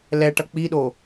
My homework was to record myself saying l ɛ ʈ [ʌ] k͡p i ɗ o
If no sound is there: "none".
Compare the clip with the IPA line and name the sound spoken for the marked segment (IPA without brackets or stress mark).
ʌ